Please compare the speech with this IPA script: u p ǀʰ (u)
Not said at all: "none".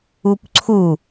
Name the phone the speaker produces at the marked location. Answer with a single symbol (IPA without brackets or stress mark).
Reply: u